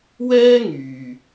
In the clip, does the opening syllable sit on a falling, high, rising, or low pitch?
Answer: high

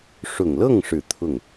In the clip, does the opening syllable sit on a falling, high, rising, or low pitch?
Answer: low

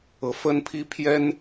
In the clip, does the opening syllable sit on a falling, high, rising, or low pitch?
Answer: rising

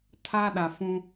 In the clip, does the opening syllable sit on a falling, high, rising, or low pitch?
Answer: high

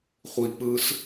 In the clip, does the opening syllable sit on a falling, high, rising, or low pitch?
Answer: low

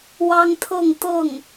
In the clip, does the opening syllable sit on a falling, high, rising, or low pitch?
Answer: high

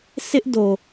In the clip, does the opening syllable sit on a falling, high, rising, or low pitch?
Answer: high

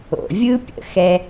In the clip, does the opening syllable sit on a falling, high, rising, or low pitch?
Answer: low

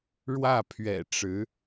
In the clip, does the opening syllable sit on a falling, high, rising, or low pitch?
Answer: falling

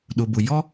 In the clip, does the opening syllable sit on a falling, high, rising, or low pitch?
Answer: low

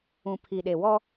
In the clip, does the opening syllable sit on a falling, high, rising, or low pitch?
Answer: low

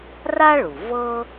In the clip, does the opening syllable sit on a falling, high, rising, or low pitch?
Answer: high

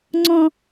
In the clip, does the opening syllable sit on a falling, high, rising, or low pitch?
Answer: high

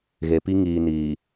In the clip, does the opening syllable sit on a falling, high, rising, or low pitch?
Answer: low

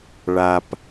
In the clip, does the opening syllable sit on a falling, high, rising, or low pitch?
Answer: low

